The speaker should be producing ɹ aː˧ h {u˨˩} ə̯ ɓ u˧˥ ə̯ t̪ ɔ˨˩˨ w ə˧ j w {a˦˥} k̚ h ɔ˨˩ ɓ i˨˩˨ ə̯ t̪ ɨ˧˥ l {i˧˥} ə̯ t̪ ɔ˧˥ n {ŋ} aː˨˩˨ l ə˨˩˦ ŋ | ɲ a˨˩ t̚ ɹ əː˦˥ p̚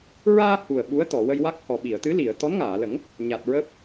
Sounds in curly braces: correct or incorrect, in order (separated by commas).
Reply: correct, correct, incorrect, correct